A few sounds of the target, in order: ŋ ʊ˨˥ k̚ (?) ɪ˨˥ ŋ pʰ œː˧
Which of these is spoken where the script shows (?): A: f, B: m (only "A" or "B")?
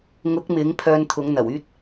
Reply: B